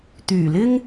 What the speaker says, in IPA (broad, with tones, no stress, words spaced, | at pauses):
t̪yː˨˩lɪ˥ŋ